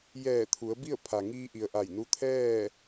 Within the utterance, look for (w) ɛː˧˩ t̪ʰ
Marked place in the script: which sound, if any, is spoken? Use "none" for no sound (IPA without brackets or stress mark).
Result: j